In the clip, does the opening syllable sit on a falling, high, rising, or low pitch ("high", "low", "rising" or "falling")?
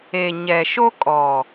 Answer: low